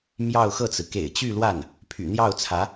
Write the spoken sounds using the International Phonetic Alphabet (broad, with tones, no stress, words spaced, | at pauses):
mjɑ˥˧ʊ̯xɤ˥˩t͡sɹ̩˩ kḛ˨˩ɪ̯t͡ɕy˥˧lwa˥˩n | pʰy̰˨˩n̪jɑ˥˩ʊ̯t͡sʰä˧˥